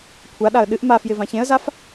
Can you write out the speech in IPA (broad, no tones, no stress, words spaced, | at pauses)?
kʷʰaɗaə̯ ɗɨʔ mafjɪ vãçẽə̯zaf